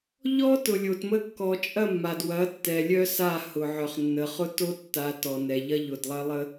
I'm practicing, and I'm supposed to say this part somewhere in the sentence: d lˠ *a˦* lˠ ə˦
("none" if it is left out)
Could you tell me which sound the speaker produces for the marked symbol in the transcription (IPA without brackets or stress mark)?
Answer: ɐ˦